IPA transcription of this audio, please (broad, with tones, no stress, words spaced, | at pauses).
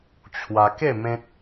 t͡ɕʰwa˧ ke˥˧ mẽ˦t̚